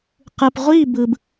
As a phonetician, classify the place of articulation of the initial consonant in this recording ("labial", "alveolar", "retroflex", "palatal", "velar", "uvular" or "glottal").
uvular